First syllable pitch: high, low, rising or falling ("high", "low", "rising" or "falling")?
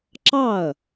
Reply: falling